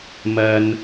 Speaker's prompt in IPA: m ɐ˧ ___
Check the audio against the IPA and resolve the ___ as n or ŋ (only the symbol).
n